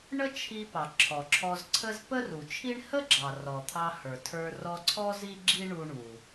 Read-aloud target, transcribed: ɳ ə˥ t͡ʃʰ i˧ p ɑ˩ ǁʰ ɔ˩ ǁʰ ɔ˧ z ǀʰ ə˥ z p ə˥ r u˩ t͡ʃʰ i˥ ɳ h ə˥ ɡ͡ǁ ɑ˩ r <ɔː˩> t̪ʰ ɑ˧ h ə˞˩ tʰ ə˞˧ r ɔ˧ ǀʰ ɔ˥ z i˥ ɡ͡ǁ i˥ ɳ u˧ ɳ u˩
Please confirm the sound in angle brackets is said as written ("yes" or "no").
no